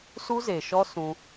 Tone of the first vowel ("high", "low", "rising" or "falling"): high